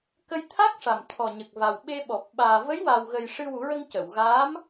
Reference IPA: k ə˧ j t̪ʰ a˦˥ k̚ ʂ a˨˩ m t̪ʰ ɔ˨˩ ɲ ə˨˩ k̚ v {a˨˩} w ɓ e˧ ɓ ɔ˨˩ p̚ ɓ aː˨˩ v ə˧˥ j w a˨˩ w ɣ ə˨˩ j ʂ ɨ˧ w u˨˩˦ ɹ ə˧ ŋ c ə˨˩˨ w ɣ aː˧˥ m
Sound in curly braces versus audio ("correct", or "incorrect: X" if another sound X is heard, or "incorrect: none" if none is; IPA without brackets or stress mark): correct